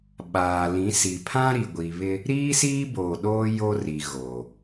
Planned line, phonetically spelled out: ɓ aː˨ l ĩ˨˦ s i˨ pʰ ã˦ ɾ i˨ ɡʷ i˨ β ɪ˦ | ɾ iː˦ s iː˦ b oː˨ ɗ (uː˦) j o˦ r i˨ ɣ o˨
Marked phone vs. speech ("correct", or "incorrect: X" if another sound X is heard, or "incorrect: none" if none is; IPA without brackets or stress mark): incorrect: oː˦